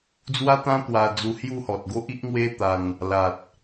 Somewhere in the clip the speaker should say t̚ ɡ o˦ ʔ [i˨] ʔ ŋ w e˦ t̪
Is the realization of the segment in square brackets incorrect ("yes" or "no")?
yes